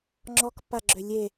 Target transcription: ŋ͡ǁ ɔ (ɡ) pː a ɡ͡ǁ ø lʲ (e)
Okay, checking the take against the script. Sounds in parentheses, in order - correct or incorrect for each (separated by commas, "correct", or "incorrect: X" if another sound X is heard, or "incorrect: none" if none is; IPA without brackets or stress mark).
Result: incorrect: k, correct